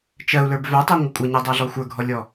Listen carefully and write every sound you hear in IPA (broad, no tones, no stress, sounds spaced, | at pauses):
t͡ʃ ɜ u̯ l ə˞ b v œ tˤ ə˞ ŋʷ ə kʷʼ ə ɲ ɜ dˤ a ɮ ɔ xʷ ə˞ ɡʱ ɔ lʲ ɔ